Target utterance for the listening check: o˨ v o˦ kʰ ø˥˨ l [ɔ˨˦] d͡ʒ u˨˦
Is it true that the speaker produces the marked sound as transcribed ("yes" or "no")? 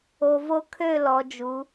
yes